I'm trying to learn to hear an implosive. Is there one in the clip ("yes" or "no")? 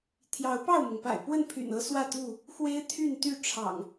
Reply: no